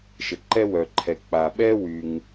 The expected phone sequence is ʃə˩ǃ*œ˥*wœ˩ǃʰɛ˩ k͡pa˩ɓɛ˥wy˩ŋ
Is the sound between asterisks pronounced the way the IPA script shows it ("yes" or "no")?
no